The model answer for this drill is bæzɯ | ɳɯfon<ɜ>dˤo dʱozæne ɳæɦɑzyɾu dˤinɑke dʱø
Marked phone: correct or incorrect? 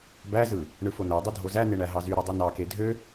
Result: incorrect